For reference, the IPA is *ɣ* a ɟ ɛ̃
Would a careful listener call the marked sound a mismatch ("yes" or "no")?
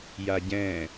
yes